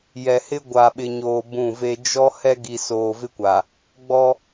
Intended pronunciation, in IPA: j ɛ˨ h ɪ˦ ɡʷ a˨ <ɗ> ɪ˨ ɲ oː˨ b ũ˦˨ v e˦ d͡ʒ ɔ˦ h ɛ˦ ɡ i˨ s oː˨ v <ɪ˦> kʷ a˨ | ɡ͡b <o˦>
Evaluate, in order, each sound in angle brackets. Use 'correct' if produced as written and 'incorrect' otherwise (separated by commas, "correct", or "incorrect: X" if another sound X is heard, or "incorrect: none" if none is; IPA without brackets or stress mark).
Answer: incorrect: ɓ, correct, incorrect: ɔ˦